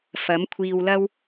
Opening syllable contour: rising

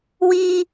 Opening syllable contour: high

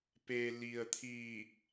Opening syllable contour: low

